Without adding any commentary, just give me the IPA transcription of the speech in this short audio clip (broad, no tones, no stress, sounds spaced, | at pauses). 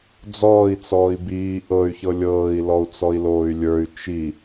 d͡z ɔː i̯ t͡s ɔː i̯ b iː ʔ ɤ y̯ ç ɤ lʲ ɤː i̯ l ɔ u̯ t͡s ɔ i̯ l oː y̯ lʲ ə˞ y̯ t͡ʃ i